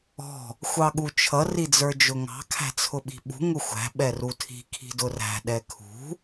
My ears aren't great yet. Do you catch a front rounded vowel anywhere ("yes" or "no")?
no